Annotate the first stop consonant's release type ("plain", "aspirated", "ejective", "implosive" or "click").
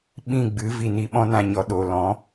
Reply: implosive